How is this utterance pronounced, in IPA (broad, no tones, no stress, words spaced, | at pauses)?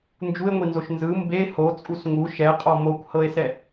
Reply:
nd͡ʒue̯ŋʷinzoʃ nzɯ mbe hot͡sʼus ŋu ʃɛqʼɔ mokʷhɤe̯sɛ